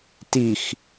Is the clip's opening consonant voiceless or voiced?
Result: voiceless